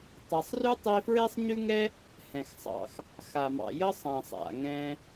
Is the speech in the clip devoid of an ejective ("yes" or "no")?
yes